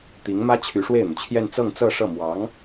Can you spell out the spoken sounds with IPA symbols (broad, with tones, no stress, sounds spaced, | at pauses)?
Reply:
t̪ i˧˥ ŋ m ä˥ t͡ɕʰ y˧˥ ʂ w e˥˩ ɪ̯ n̪ u˩ t͡ɕʰ j ɛ˥˧ n t͡s ɤ˥˧ ŋ t͡s ɤ˥˧ ʂ ɤ˥˩ m w ɑ˧˥ ŋ